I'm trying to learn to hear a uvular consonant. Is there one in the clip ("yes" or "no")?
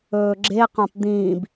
yes